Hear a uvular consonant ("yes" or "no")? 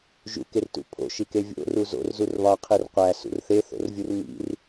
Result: yes